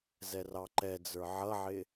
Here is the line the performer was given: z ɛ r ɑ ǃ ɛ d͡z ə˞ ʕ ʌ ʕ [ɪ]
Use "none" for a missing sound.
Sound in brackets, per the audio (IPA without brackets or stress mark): ɪ